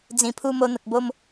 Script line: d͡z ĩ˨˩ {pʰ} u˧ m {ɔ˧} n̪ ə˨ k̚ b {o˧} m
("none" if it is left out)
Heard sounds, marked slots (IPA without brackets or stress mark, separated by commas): pʰ, o˧, o˧